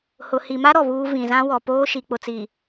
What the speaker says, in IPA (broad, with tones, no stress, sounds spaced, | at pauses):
h ʊ˨ h i˨ m a˦ ɾ ɔ˨ β uː˦ v ĩ˨ z ã˦ w ɔ˨ p oː˦ ʃ i˨ k͡p ʊ˨ t͡s i˨